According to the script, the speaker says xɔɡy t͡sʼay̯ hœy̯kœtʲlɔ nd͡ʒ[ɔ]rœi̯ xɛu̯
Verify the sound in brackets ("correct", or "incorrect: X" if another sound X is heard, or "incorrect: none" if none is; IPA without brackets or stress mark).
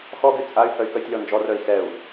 correct